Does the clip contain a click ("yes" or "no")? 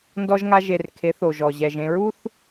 no